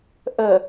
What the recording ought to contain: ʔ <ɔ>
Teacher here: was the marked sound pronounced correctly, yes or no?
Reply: no